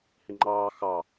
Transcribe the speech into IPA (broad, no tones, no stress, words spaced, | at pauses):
hɪŋ͡ǃɑː xɑ